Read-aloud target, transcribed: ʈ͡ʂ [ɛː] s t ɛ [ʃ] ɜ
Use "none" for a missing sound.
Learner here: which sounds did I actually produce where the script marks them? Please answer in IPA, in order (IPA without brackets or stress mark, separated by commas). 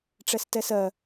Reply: ɛ, s